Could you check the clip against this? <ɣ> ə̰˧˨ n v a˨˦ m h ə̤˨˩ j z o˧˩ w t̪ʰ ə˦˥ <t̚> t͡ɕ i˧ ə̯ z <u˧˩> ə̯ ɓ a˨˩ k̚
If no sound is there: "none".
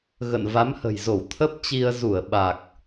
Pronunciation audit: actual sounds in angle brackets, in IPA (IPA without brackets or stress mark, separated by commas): ɣ, p̚, u˧˩